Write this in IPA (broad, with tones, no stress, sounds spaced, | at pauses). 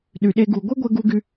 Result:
ɗ y˧ ɗ e˦ ɡ u˧ ɡʷ e˦ ɡʷ ɛ˧ ɡ u˧ ɡ y˧